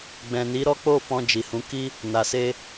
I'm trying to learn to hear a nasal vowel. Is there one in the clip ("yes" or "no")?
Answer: yes